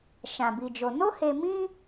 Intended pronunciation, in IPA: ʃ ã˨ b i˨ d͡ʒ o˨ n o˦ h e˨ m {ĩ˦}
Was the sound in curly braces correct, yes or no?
yes